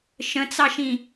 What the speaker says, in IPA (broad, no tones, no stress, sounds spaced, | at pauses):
ʃ ə̃ t͡s ɑ ʃ ĩ